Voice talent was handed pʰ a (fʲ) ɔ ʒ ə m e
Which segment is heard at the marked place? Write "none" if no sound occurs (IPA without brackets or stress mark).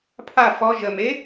f